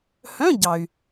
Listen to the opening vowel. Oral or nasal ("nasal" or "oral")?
nasal